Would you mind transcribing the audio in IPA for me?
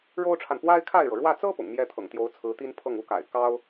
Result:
ɻ o˥ ʊ̯ ʈ͡ʂʰ a˨ n p w a˥ ɪ̯ kʰ a˥˩ ɪ̯ ɻ ɤ˩ ɻ w ä˥˩ t͡s ɤ˥ p ʊ̰˨˩ ŋ m j ɛ˥ t̪ʰ ɤ̰˨˩ ŋ t̪ j o˧˥ ʊ̯ t͡sʰ ɹ̩˧˥ t̪ i˥ n pʰ ɤ˥˩ ŋ u˥ k a̰˨˩ ɪ̯ k ɑ˥ ʊ̯

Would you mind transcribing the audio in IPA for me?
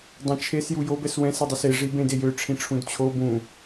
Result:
dˤ ɛ̃ t͡ʃʰ e s j u j o b ɛ s w ɛ̃ s i dˤ ɛ s e ʐ i b ẽ d e j ø ʈ͡ʂʰ ĩ ʈ͡ʂʰ ũ d t͡ɕʰ o b ũ

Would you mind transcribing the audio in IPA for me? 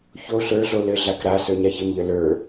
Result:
ç o ɬ ə˞ ɮ o l ɘ ɮ a k ɾ a s ə˞ ɲ a ç ɘ m ʎ ə l ə˞

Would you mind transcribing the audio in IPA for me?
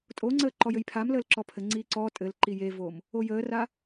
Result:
tʼ o ŋ͡ǀ əː ǃ ɔ j ɘ j pʰ a m l əː l ǁ ɔ pʰ ɘ ŋ͡ǀ iː ǀ ɔ tʼ ɘ l ǃ i j e v o m | o j əː r a

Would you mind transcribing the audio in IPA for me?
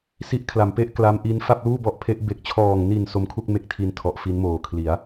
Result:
s i˦˥ ʔ kʰ l a˨˩ m p e˥˩ ʔ k l a˦˥ m ʔ i˦˥ n f a˥˩ p̚ l uː˥˩ b ɔ˦˥ ʔ pʰ e˦˥ ʔ b e˨˩ k̚ t͡ɕʰ ɔː˨˩ ŋ n i˨˩ n s o˦˥ m kʰ u˥˩ k̚ m e˥˩ k̚ tʰ i˧ n tʰ ɔ˨˩ ʔ f i˦˥ n m oː˨˩ kʰ l i˩˦ a̯

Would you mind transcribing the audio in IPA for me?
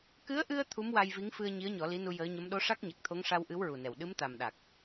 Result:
k ɨ˧˥ ə̯ ʔ ɨ˧ ə̯ t̪ʰ u˧˥ m w a˧ j v i˧˥ ŋ f ɨ˧ ə̯ ɲ i˧˥ ə̯ ɲ ɔ˨˩˦ l i˧˥ n u˧ j əː˧˥ ɲ ə˧˥ m ɗ o˧˥ ʂ a˦˥ k̚ ɲ a˨˩ k̚ t̪ʰ o˧˥ ŋ ʂ a˧ w ʔ ɨ˧˥ w ɹ u˨˩ n ɛ˨˩ w ɗ ɨ˧˥ m t̪ a˨˩ m ɗ a˨˩ k̚

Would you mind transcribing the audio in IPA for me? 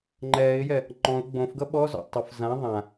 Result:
ŋ͡ǃ ɛː ɪ̯ j ɛ | ŋ͡ǃ ɔ̃ ʊ̯ ɡ͡b õ f ɡ ʌ ɓ ɔ z ɔ̰ tˤ ʊ f z ã ðˤ ã

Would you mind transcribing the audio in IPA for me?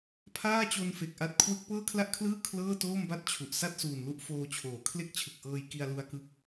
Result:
pʰ aː˥˩ t͡ɕ o˧ n f e˨˩ k̚ ʔ a˦˥ t̚ kʰ w ɯ˦˥ k̚ p ɤː˥˩ kʰ l a˥˩ ʔ kʰ l ɯː˥˩ kʰ l ɤː˥˩ t oː˥˩ m b a˥˩ t̚ t͡ɕʰ u˨˩ ʔ s a˥˩ t̚ s uː˨˩ n l u˦˥ ʔ f oː˧ t͡ɕʰ oː˩˦ kʰ l e˥˩ k̚ t͡ɕʰ ɯ˨˩ k̚ ʔ ɤː˧ j k i˧ a̯ l u˧ a̯ k ɯ˦˥ k̚

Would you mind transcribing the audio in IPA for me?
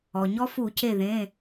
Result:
ɔ˩ ɲ ɔ˦ f u˧˩˧ c e˧˩ ð ẽ˩˧˩

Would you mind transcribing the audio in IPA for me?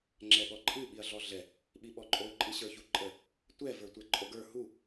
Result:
ŋ͡ǁ ɛ ɠ ɔ ǃʼ ɨ ɓ i ɐ̯ ɮ ɔ ɮ ɛ | ɓ i ɓ ɔ ǃʼ o ǃʼ ɨ ɕ ə˞ ç u ǃʼ ə | tʷ ɛ v ə˞ tʷ ɛ ǃʼ o ɡ ə˞ h u

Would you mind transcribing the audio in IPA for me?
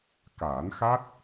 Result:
k aː˨˩˦ n x a˦˥ t̚

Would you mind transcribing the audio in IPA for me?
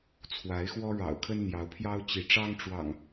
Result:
t͡sʰ w a˨˦ ɪ̯ x w ɔ˦ ɻ ɑ̰˨˩ ʊ̯ kʰ ə˦ n n̪ j ɑ˨˦ ʊ̯ pʰ j ɑ˦ ʊ̯ t͡ɕ i˨˦ ʈ͡ʂ ɑ˦ ŋ ʈ͡ʂ w ɑ̰˨˩ ŋ

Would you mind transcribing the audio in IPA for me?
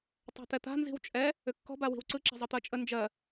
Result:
tˤ ɛ̤ t̪ ɛ t̪ a̤ n z i̤ w t͡ʃʼ ɛ | ʏ kː ɔ̤ b a w i̤ w ǀ ɯ ǁ ɛ̤ zˤ ɤ t̪ ɜ t͡ʃʼ ə n d͡ʒ ɜ

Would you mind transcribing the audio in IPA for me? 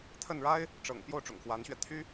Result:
t̪ʰ ə˥˩ n ɻ a˥ ɪ̯ | ʈ͡ʂ ɤ̰˨˩ ŋ p j o˥˩ ʊ̯ ʈ͡ʂ ʊ̰˨˩ ŋ x w a˧˥ n ɕ ɥ ɛ˧ t̪ʰ y˥

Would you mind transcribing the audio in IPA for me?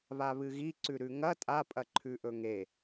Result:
β a β ɨ ɣ i ǀ ʉ ɾ ʉ ŋ ɐ tʼ a pʼ ɐ ǃʰ ʉ ʔ ɵ ŋ e

